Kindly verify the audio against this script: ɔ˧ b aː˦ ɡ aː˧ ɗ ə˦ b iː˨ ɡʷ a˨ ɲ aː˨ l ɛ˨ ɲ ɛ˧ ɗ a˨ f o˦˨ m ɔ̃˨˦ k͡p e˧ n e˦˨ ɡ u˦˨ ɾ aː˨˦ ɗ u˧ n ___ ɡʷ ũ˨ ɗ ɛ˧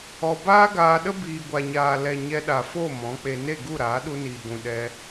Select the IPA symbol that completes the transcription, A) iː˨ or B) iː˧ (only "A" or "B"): A